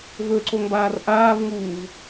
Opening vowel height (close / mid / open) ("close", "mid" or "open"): mid